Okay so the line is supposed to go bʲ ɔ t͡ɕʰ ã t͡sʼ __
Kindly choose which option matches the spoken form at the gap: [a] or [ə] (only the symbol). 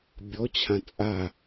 a